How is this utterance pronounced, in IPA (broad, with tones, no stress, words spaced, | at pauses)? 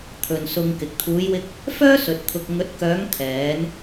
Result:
t̪ʰɵ˨nsʊ˧ŋkɪ˨k̚ t̪ʰuː˨˧jwɪ˧k̚ | fœː˥sɵ˨t̚ t̪ʰʊ˧k̚ ŋɵ˨˥t̚kœː˨˧ŋ t̪ʰɛː˨˧n